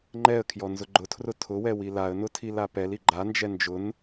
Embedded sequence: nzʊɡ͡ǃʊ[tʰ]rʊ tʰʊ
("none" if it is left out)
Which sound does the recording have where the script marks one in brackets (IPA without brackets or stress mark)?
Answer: tʰ